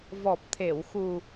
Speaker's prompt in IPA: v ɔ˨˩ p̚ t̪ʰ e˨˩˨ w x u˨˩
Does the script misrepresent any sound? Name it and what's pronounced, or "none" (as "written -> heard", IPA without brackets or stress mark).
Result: none